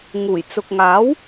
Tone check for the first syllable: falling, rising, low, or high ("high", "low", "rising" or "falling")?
low